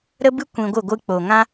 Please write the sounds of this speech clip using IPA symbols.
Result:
ɾ ə˦ b ɨ˦ kʷ ĩ˧ ɡʷ ɨ˦˨ ɡʷ ɨ˧ k͡p o˨ ŋ ã˦

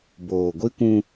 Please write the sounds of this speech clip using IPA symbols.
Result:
b oː˨ ɡʷ i˦ kʷ ũ˦

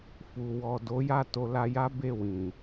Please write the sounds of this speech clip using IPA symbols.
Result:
f u˨ w ɔ˨ d o˨˦ j a˦˨ t o˧ l a˧ j a˦ b e˦˨ w ĩ˨

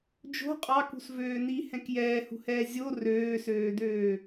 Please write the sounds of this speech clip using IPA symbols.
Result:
d͡ʒ o̤ qʼ ɑ k ṳ s v øː n i h ɛ̃ k j ɛː h ṳ h ɛː zʲ o r øː s øː d øː

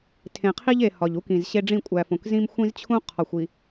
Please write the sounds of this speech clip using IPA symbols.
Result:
tʰ ẽ˨ qʰ i˦ ʎ e˨ h ɒ˨ ʎ u˦ k ĩ˨ z ɕ e˦ ɖ͡ʐ ĩ˦˨ kʷʼ æ˨ f õ˨ k z ĩ˦ m xʷ ĩ˦ z t͡ɕʰ ũ˦ qʰ ɒ˨ xʷ i˨

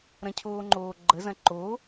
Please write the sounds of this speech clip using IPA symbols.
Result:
ɾ ɐ̃ cʰ oː ŋ͡ǃ oː ɡ͡ǃ ə z ɐ̃ ǃ o

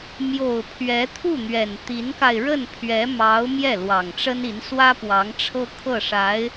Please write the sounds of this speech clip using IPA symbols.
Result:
m j o˨˩ ʊ̯ pʰ ɥ ɛ˧˥ t̪ʰ u˥˩ n̪ ɥ ɛ˨˩ n t̪ i˧˥ n k a˧ ɪ̯ ɻ ə˥˩ n pʰ ɥ ɛ˧˥ m ɑ˧˥ ʊ̯ m j ɛ˥˩ l w ɑ˨˩ ŋ ʈ͡ʂ ə˥ n i˧˥ n s w ä˥ p w ɑ˧˥ ŋ ʈ͡ʂʰ ɤ˥ kʰ ɤ˥˩ ʂ a˧˥ ɪ̯

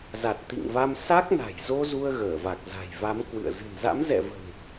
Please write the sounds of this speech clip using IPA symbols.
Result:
z a˨˩ t̚ t̪ ḭ˧˨ ŋ v a˧ m s a˦˥ k̚ n a̤˨˩ j z o˧ z u˧ ə̯ ɣ əː˧˩ v a˨˩ k̚ z a̤˨˩ j v a˨˦ m k w ɨ̰˧˨ ə̯ z ɨ̤˨˩ n z a̰˧˥ m z ɛ̰˧˨ v ə̤˨˩ n

